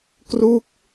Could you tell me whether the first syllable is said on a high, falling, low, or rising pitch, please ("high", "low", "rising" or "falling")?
falling